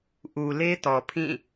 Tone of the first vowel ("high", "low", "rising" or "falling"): low